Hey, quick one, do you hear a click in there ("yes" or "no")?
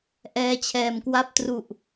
no